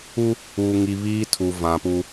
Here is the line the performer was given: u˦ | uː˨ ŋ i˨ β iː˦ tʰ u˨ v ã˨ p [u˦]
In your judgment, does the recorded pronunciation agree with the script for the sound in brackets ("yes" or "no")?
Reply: yes